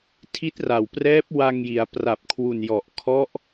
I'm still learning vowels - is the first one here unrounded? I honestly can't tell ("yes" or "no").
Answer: yes